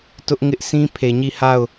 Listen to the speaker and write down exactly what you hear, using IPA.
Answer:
t ʊ˦ ʔ ŋ ɪ˦ ʔ sʰ ĩ˦ pʰ e˨ ɲ i˦˨ h a˦˨ ʊ̯

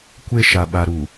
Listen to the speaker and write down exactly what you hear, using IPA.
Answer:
kʷ e˦ ʃ a˨ ɓ a˨ ɾ u˨

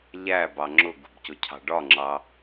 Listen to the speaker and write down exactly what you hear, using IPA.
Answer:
ʎ æ b ɑ ŋ͡ǁ ʊ ɡ ṳ b c ʊ cʰ ɑ̤ ɖ ɒ ŋ͡ǁ ɑ

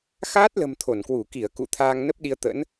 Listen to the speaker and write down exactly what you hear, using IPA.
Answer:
x aː˦˥ t̚ l ə̤˨˩ m t̪ʰ o˧˩ n k w u˧˩ k i˧˩ ə̯ k ṵ˧˨ t̪ʰ aː˧ ŋ n ə˦˥ p̚ ɗ i˧ ə̯ t̪ ə̰˧˥ n

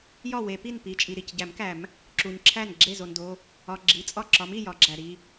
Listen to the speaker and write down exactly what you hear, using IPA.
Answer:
j ɒ˥˩ w e˨˩˦ p i˥˩ n p i˩˧˩ t͡ʃʼ i˩ ɾ i˥˩ c ɟ æ˨˩˦ m k æ˨˩˦ m | ǁ u˩ ɲ ǁʰ æ˥˩ n ɡ͡ǁ e˥˩ z o˩ n d o˩˧˩ | ɒ˩˧˩ ɡ͡ǁ i˩˧˩ t͡sʼ ɒ˥˩ ǁ ɒ˨˥ m i˥˩ j ɒ˨˩˦ ɡ͡ǁ æ˩ ɾ i˩˧˩

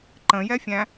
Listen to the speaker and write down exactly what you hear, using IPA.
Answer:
ǃ ə̃ j ɛ fʲ æ̃

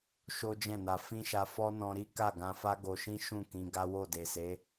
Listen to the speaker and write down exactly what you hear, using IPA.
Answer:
ʃ o˦ d͡ʒ ɛ̃˦˨ n a˧ f ĩ˦ ʃ a˧ f ɔ˦ n ɔ̃˧ ɾ i˦ k a˦˨ ɡ ã˧ f a˦ ɡ o˧ ʃ ĩ˦ ʃ ũ˦˨ k ĩ˧ ɡ a˦ w o˦˨ d e˨ s e˨˦

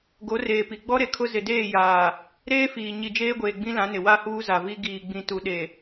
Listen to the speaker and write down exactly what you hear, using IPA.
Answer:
ɡ o˨˦ r eː˨ p i˨ ɡ͡b ɔ˦ ɾ e˨ kʰ ʊ˦ z ɪ˨ d eː˦˨ j aː˨ | ɾ eː˦ f iː˨ ɲ i˨ d͡ʒ eː˦ ɡʷ eː˨ ɡ͡b ĩ˦ l ã˨˦ n ɪ˨ w a˦ h uː˦ z a˨ v i˦ ɡ iː˨ ɡ͡b ĩ˨ t u˨ ɗ e˨

